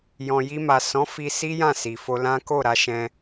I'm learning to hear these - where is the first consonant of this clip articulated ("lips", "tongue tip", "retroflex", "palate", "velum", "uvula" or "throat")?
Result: palate